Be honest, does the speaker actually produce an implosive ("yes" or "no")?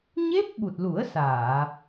yes